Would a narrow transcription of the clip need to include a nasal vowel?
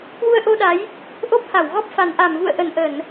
no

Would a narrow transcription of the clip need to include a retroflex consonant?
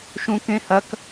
no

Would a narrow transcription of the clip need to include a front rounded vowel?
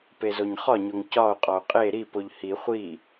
no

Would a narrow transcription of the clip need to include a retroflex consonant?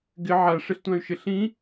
yes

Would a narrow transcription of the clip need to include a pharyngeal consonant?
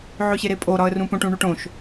yes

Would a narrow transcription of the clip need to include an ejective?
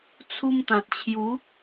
no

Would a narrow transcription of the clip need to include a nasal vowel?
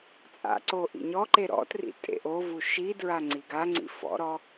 no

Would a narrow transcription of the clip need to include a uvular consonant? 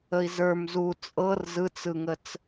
no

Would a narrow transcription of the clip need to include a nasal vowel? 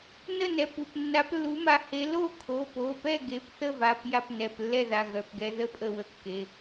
no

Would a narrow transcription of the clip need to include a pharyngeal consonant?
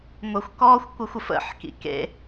yes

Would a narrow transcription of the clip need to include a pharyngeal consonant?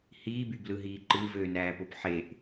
yes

